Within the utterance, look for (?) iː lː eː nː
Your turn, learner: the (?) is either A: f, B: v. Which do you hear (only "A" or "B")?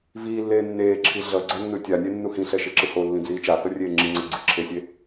B